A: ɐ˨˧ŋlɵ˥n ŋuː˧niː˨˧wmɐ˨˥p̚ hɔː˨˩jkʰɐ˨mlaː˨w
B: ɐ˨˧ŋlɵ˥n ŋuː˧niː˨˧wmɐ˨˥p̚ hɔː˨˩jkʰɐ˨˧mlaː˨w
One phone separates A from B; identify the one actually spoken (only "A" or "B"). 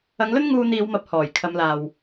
B